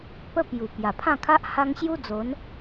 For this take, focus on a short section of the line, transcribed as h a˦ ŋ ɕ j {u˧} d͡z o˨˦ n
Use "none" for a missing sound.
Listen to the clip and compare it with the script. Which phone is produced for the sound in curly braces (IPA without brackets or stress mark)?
u˦